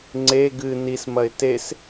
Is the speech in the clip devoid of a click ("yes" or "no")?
no